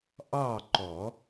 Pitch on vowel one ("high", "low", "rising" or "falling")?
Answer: falling